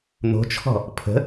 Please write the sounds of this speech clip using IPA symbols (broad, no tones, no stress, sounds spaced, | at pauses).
n̪ o̤ t͡ʃʰ ɔ̤ | pʰ ə̤